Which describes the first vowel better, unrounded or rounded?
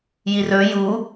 unrounded